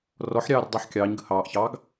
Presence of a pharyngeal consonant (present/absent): present